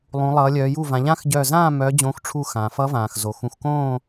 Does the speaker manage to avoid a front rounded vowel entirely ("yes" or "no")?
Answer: no